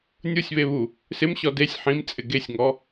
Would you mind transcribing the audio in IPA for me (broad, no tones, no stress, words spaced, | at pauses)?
nʲusʲβeβu | sɪmɕɔ desʲ ħĩmt͡sʼɪ ɡesʲŋɔ